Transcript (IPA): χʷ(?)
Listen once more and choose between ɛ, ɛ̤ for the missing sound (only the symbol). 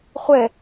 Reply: ɛ